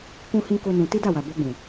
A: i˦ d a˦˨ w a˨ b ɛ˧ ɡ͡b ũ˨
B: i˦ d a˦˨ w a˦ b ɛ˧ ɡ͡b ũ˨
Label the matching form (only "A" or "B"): A